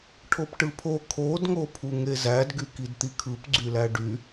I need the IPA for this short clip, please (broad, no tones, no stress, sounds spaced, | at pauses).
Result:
ʈʰ o p ʈ ɯ pʰ o kʰ o d ŋ o pʰ u ŋ e z æ d ɡ y k i d t̪ i kʰ ɯ p ɡ͡ǀ y l æ ɖ y